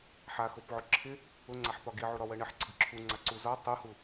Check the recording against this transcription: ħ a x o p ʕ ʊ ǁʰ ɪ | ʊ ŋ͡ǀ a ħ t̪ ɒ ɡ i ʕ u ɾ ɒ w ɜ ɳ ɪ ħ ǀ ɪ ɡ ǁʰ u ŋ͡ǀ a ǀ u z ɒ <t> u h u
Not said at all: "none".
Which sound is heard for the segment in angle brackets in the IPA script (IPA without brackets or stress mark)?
tˤ